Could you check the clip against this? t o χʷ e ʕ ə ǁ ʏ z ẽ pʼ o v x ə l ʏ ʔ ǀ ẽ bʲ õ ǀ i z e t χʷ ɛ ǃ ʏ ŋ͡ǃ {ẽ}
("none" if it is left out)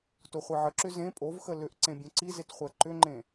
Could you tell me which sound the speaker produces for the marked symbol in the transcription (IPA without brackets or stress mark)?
ẽ